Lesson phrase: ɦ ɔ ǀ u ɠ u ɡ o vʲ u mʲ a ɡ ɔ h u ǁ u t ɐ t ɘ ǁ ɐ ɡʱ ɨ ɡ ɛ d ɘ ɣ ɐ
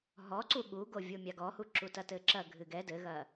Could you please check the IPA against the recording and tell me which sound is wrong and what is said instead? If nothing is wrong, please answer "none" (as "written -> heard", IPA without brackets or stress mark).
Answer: none